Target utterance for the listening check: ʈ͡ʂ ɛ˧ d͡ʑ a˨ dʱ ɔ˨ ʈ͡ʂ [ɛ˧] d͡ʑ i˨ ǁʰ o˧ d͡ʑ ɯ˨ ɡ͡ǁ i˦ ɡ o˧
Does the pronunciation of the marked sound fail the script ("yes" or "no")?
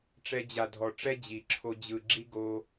yes